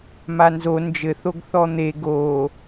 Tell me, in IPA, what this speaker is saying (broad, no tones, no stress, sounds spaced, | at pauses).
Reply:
m a n z o n d͡ʒ ɘ θ o ɡ θ ɔ n̪ e ɡ o